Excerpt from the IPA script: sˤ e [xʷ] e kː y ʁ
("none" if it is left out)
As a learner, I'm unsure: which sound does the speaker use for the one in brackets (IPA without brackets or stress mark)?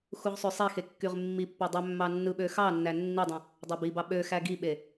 x